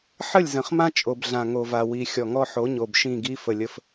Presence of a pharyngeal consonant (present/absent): present